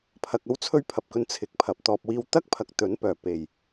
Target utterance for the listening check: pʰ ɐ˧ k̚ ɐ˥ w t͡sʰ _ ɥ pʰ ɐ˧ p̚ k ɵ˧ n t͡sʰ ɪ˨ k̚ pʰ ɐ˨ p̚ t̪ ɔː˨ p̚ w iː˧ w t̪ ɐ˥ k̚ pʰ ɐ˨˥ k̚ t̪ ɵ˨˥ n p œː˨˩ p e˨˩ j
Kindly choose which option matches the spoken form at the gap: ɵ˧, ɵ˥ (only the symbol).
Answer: ɵ˥